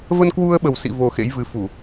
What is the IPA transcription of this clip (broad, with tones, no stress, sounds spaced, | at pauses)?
v ə˧ n k w u˧ ə̯ ɓ ə˨˩ w s ḭ˧˨ v o˨˩ x ḛ˧˥ j v ɨ˨˦ f u˧˩˨